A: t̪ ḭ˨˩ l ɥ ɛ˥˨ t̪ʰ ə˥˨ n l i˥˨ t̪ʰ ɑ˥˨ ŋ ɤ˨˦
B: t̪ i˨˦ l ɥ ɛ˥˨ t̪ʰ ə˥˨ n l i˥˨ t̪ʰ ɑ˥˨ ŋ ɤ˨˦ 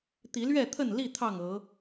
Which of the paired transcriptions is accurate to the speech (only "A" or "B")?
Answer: B